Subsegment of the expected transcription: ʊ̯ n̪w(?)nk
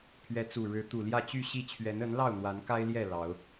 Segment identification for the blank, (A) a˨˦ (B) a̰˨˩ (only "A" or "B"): A